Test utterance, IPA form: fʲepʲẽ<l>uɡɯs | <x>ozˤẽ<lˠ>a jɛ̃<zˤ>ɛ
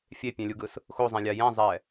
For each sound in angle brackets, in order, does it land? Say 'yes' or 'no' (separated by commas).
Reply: no, yes, no, yes